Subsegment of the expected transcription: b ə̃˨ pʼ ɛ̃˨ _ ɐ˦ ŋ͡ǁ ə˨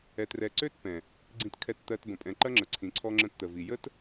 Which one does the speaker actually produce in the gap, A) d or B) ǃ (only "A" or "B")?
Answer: B